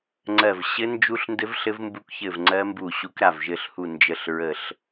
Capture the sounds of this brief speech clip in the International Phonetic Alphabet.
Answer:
ŋ͡ǀɜ˦˨v ɕɘ˦˥nd͡ʒu˦˥ɬndɘ˦˥v ɬɘ˦˥vmbu˦˥kçɘ˦˨vŋ͡ǀɜ˦˥ mbu˦˨ɕu˦˥kɾa˦˨v ʒɘ˦˨ɬhu˦˨ nd͡ʒə˦˨ɬɹə˦˨ɬ

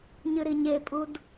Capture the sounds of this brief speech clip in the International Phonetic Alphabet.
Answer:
ɲɨɾiɲepʼud

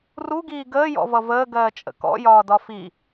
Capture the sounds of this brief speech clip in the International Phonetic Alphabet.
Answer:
ruɡiː ɡəːjɔ̰vʌ vəːɡɜːt͡ʃʼə̰ kɔ̰jɒːdɒ fi

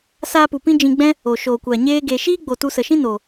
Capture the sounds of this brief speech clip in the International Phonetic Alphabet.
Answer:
saː˧pu˨pĩ˧ d͡ʒĩ˧ɡ͡bɛ̃˦ | o˨ ʃoː˨kʷa˨ ɲeː˦ɡe˧ ʃiː˦ɡ͡bo˨tu˧ sə˨ʃĩ˦ noː˨

